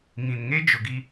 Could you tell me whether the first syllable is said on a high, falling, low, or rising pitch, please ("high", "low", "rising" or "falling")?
low